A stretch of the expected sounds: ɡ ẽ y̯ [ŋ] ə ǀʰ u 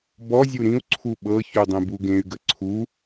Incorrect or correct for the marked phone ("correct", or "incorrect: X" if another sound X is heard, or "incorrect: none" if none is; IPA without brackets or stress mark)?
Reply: incorrect: ɡ